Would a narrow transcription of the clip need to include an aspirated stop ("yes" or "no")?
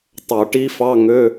no